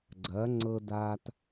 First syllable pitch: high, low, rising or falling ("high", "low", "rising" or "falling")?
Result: rising